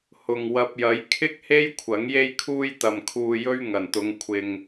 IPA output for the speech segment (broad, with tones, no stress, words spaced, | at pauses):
hʊ˨ŋwɐ˧p̚jɐ˨˥j kʰɪ˥k̚he˥j kʷʰɐ˨˥ŋje˥jkʰuː˥j t̪ɐ˨mkʰuː˧jɵ˥ɥ ŋɐ˨˩nt̪ʊ˨˧ŋ kʷʰɪ˨ŋ